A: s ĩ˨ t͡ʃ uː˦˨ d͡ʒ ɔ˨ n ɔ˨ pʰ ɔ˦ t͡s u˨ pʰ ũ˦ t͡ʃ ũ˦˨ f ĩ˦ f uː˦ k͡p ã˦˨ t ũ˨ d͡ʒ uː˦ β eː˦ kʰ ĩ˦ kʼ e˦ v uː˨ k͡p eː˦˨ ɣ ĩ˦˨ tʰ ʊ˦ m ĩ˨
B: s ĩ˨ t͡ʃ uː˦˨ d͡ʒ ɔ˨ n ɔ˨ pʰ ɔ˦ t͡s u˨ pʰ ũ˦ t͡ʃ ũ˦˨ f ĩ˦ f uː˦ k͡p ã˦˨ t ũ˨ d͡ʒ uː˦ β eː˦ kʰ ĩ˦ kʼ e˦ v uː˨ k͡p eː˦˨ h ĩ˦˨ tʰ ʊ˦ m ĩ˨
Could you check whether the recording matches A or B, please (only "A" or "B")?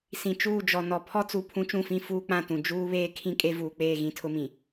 A